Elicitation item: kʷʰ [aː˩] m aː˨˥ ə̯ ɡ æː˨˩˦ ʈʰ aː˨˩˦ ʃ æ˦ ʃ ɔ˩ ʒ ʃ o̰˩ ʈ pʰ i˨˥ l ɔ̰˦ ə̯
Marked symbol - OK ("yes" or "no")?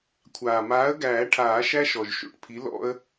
yes